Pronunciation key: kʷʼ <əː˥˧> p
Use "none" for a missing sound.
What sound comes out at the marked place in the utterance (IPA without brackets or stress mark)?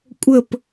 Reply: əː˥˧